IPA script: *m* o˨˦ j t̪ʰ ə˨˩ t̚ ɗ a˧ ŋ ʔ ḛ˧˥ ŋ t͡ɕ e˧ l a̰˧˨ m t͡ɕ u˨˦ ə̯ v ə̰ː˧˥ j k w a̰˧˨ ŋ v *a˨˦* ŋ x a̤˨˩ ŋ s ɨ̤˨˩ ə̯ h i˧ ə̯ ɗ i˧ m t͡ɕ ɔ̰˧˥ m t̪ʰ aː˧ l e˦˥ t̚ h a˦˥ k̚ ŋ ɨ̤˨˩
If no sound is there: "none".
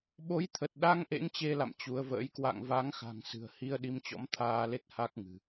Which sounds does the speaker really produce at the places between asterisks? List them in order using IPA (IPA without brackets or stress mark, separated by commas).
ɓ, a˨˦